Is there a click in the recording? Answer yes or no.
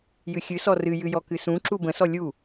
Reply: yes